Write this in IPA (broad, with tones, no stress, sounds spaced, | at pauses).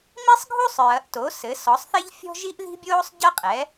m i˥ sˤ ɡʱ u˥ sˤ ɹ ɐ˩˥ ʔ t o˩˥ s ɘ˩˥ s ɔ˩˥ sˤ θ e˥ ʎ fʲ ɔ̤˥ ʒ i˥ ʔ ð i̤˥ bʲ oː˥ sˤ ɟ ɐ˥ qʼ ɛ˩˥